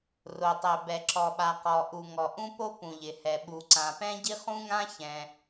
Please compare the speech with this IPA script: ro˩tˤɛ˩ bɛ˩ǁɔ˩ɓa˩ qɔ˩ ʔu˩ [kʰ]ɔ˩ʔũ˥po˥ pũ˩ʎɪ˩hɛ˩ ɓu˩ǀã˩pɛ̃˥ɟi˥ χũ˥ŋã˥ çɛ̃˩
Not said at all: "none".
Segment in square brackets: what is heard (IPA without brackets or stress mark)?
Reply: ŋ